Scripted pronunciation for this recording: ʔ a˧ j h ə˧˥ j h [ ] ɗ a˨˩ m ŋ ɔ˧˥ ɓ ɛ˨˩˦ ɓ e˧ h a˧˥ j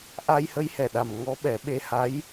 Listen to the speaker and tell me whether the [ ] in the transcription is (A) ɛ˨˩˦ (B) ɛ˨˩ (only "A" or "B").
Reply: B